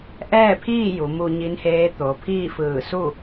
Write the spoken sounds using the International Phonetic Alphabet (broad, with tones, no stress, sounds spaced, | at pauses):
ʔ ɛː˥˨ pʰ iː˥˨ j u˩˧ m u˧ ɲ i˧˥ n h eː˧˥ t̪ o˩˧ pʰ iː˥˨ f ɯː˧˩ s u˥˨